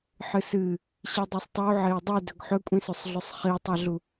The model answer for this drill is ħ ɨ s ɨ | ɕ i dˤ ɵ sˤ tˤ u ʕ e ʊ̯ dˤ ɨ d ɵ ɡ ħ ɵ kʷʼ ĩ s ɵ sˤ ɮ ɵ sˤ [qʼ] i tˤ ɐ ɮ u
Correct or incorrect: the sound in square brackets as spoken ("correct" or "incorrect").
incorrect